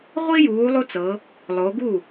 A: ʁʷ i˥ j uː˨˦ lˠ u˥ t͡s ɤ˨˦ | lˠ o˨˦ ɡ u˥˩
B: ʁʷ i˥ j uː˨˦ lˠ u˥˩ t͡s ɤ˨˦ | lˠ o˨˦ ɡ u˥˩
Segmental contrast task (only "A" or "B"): A